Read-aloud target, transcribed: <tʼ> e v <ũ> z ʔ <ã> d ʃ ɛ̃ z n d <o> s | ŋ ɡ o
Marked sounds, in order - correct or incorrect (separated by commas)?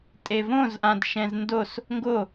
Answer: correct, incorrect, correct, correct